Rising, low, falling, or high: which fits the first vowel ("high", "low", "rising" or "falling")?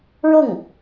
falling